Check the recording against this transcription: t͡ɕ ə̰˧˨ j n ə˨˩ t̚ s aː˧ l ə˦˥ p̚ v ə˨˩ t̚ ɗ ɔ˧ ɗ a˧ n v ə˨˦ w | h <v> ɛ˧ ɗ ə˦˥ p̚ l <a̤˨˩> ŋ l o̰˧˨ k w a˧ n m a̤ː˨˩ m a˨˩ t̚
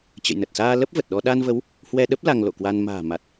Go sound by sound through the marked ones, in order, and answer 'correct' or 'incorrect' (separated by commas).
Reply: incorrect, incorrect